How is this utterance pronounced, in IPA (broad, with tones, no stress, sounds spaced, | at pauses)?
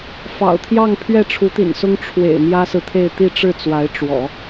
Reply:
f ɑ̰˨˩ ʊ̯ t̪ʰ j ɑ˥˧ ŋ pʰ ɥ ɛ˥˩ ʈ͡ʂʰ u˧˥ t̪ ḭ˨˩ n s ʊ˥ ŋ ʈ͡ʂʰ w ḛ˨˩ ɪ̯ m j ä˥ s ɹ̩˨ t̪ʰ e˥˧ ɪ̯ t̪ i˥˧ ʈ͡ʂ ɻ̩˥˩ t͡s w a˧˥ ɪ̯ ʈ͡ʂ w ɔ̰˨˩˦